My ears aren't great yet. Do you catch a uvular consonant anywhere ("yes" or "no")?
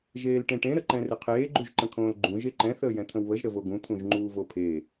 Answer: yes